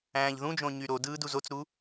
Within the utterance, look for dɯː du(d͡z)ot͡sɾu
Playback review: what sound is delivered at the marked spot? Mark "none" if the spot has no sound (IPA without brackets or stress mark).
z